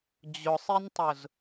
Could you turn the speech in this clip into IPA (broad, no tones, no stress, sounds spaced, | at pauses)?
d͡ʑ ʊ sˤ i n tˤ ʊ z